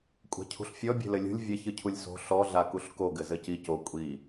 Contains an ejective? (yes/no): yes